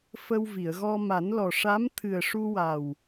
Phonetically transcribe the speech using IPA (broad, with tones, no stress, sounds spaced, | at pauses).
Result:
f ə˧ w v i˨˩˨ ə̯ ɣ ɔ˧ m a˨˩˦ n l ɔ˨˩ ʂ a˧˥ m t̪ʰ ɨ˨˩ ə̯ ʂ u˧ w a˨˩ w